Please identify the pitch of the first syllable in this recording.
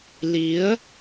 rising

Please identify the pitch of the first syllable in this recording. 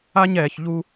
high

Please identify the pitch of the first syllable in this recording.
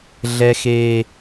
high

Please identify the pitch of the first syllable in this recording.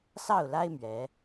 falling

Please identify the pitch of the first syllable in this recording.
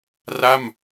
falling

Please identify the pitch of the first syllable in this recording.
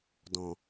low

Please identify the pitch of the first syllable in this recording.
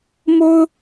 high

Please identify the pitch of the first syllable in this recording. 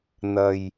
low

